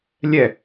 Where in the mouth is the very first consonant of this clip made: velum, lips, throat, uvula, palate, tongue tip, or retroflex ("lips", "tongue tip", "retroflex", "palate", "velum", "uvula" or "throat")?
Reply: tongue tip